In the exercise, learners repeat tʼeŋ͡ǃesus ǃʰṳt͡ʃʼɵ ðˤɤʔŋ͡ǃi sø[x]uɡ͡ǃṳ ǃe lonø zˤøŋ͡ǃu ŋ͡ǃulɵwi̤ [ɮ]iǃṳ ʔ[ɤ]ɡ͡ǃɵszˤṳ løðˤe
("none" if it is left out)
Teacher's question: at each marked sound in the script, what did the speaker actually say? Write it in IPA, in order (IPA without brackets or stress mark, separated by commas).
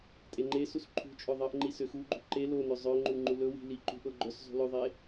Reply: x, l, ɤ